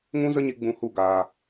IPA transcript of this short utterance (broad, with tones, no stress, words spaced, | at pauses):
ŋũ˦zə˦ɲi˧ ɡ͡bũ˧hu˦˨ ɡaː˨